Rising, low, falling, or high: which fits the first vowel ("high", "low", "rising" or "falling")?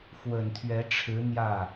low